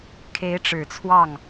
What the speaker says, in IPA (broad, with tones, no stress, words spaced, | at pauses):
kʰe˧˥ɪ̯ʈ͡ʂɻ̩˨˩t͡sʰwɑ˥˩ŋ